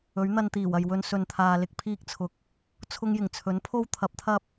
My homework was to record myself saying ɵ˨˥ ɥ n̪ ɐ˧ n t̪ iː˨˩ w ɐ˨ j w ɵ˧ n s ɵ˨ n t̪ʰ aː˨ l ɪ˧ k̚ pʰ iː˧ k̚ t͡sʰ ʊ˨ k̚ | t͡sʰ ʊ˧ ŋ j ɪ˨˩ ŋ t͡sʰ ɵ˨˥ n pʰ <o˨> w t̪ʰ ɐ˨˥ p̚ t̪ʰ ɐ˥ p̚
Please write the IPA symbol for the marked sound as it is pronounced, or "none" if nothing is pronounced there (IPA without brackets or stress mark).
o˥